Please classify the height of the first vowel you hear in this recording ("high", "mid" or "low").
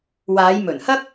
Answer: low